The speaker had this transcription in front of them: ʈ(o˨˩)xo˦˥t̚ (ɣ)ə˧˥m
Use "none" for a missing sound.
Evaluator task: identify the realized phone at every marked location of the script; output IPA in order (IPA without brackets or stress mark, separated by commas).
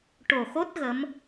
o˨˩, ɣ